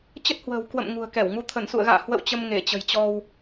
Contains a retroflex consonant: no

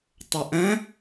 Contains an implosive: no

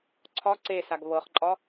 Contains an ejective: yes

